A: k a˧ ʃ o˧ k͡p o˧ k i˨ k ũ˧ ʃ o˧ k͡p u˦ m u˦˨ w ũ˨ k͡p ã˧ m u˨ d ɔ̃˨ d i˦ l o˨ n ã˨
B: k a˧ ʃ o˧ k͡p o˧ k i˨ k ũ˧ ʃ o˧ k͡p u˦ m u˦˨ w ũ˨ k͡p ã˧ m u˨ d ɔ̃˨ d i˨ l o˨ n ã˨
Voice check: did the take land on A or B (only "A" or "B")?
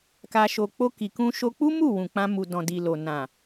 B